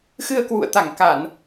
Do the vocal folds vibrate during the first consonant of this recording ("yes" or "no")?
no